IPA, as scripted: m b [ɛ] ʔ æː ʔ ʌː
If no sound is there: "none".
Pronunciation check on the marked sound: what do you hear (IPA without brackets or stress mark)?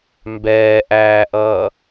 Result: ɛː